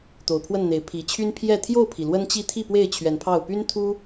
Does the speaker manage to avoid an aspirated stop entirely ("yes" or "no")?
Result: no